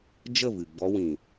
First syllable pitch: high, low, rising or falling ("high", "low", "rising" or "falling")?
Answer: falling